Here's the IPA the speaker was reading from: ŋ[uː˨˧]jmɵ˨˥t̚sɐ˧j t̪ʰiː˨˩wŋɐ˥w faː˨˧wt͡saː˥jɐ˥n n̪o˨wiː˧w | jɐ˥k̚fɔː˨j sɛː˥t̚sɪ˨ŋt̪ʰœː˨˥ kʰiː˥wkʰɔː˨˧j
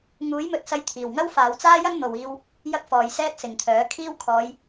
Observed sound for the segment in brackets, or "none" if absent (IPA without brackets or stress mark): uː˨˥